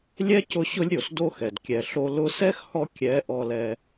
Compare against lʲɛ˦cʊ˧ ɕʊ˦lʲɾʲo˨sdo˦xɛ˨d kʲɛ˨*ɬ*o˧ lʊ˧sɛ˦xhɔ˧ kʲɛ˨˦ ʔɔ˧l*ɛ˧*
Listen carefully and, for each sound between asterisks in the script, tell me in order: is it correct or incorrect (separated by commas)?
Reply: correct, correct